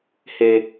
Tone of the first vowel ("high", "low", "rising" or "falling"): high